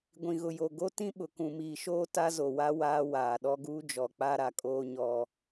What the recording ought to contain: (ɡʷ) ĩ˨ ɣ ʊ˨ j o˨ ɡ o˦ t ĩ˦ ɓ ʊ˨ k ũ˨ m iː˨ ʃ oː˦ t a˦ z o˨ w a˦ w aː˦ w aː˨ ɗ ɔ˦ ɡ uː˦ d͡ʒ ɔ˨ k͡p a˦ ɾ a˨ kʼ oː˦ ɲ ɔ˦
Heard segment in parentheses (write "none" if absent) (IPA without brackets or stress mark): ɡʷ